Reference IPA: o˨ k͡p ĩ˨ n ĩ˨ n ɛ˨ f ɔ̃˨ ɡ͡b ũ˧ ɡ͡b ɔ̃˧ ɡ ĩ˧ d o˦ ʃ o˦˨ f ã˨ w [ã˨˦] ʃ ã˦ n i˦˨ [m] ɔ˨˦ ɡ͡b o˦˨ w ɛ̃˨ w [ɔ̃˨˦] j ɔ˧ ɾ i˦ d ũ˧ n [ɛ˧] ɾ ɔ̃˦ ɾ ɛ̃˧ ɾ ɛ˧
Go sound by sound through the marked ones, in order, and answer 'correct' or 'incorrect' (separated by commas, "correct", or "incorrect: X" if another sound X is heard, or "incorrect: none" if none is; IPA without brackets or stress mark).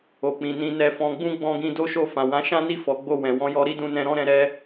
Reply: correct, incorrect: f, correct, incorrect: ɛ̃˧